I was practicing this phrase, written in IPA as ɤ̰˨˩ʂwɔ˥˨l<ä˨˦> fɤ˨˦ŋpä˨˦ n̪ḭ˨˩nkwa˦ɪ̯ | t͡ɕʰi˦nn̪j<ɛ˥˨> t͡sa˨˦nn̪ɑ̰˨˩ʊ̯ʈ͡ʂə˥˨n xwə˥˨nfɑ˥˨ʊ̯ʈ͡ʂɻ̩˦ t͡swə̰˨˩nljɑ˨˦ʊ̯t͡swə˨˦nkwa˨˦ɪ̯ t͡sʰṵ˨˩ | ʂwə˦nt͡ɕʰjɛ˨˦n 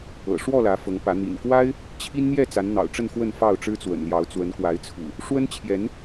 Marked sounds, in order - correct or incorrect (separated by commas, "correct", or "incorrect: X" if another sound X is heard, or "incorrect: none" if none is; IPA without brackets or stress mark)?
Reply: correct, correct